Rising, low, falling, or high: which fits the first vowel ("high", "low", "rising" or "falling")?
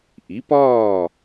rising